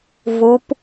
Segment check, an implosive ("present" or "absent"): absent